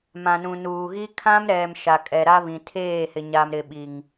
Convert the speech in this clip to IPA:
m ã˨ n ũ˨ n uː˨ ɣ i˦ kʰ ã˦ m ɾ ɛ˨ m ʃ a˨ kʼ ɛ˨ ɾ a˦ β ĩ˨ tʰ eː˦˨ h ɪ˨ ɲ a˨ m ɾ ɪ˨ ɓ i˨ ŋ

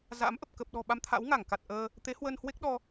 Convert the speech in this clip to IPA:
z a̰˧˥ m ʔ ə˨˩ p̚ k ə˨˩ p̚ ɗ ɔ̤˨˩ ɓ a˧ m t̪ʰ a̰˧˥ w ŋ a˧˩ ŋ k a˨˩ t̚ ʔ əː˧ | t̪ e˨˦ h w ə˧ n h w e˦˥ k̚ ɗ ɔ˧

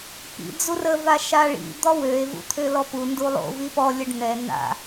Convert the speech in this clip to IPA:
p ḭ d͡z u r ə v a ʃ a ɭ ḭ d̪ ɔ w ø e̯ v ṵ t̪ʰ ø l ɔ p u n d u lˠ o̰ v i p ɔ lʲ ə ɖ n̪ ɛ n̪ a̰

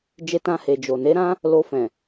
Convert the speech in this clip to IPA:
d͡ʒ e˧ t ã˧ h e˨ d͡ʒ o˨ n e˨˦ ɾ ã˦ | l o˧ f ɛ̃˨

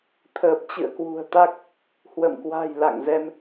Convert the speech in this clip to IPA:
t̪ʰ əː˨˩ p̚ t͡ɕ ɨ̰˧˨ ə̯ k w ṳ˨˩ ə̯ t̪ a˦˥ k̚ | h w ə̰˧˨ m k w a̤˨˩ j l a̰˧˨ ŋ z ɛ˧ m

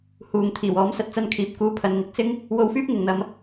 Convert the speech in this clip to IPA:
h uː˨ ŋ t̪ʰ iː˨˩ w ɔː˨˥ m s ɐ˨ t̚ t͡s ɐ˧ n kʰ iː˨ p̚ k uː˧ pʰ ɐ˨˧ n ŋ ɪ˨˥ k̚ s ɪ˥ ŋ | w o˧ w f yː˥ p̚ ŋ ɪ˨ ŋ n̪ ɐ˨˧ m

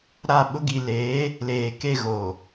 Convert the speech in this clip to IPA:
ɾ a˦˨ ɓ ʊ˦ ɡ i˨ l eː˨˦ | l eː˨ k e˦˨ ɣ o˨

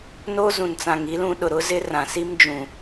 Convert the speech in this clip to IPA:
n o˦ z ũ˨ n t͡s ã˨ ŋ i˦ l ũ˦ ɗ ʊ˨ ɾ ʊ˦ z ɪ˦ r ã˨ s i˦ m d͡ʒ ũ˨

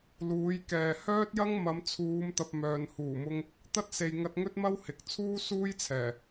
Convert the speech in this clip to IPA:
l uː˨˧ j k ɛː˨ h œː˥ t̚ j ɐ˥ ŋ m ɐ˨˧ m t͡sʰ uː˨˧ m t̪ ɐ˨ p̚ m œː˨ n h uː˨˩ m ʊ˧ ŋ | t̪ ɐ˥ t̚ s e˨ j ŋ ɐ˧ t̚ ŋ ɵ˥ t̚ m ɐ˥ w h ɪ˨ k̚ t͡sʰ uː˥ s uː˥ j t͡sʰ ɛː˨˩

